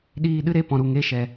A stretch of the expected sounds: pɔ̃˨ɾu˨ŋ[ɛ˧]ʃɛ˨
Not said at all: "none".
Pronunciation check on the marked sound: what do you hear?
e˧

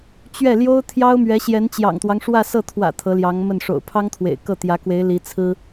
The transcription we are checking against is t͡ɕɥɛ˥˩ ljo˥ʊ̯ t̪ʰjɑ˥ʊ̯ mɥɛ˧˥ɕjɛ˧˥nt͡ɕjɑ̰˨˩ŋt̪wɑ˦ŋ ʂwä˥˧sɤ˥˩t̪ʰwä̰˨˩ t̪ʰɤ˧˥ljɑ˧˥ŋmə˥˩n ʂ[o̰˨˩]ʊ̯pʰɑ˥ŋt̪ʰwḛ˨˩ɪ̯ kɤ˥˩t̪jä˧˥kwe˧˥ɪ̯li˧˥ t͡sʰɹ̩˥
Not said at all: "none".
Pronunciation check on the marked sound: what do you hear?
o̰˨˩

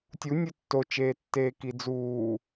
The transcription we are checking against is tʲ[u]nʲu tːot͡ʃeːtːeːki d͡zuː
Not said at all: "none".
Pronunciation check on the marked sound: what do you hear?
u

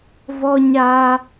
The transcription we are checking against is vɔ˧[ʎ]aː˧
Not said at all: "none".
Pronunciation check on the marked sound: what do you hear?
ɲ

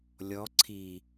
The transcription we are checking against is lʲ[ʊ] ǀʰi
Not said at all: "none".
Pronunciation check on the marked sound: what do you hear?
ɔ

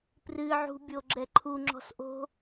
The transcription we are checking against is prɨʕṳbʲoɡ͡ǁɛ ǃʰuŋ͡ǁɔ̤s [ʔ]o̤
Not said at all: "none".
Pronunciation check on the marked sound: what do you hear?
ʔ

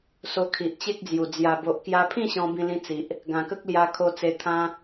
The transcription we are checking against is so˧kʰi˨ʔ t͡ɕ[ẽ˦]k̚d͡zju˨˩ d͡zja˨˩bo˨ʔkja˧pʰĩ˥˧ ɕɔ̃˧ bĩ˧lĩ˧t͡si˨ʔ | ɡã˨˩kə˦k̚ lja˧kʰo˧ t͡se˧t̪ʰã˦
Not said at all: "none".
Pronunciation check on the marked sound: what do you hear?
e˦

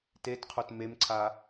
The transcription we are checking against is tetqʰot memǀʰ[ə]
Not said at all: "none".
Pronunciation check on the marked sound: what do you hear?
a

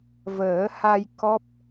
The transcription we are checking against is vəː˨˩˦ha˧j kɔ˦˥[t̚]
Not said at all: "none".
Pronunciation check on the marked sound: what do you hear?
p̚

